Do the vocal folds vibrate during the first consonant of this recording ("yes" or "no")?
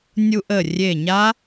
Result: yes